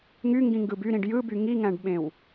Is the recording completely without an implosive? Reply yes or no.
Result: no